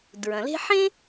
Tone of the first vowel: low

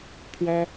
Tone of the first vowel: high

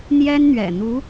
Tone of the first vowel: high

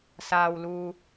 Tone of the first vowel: low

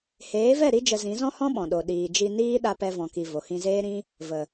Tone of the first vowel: rising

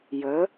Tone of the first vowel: rising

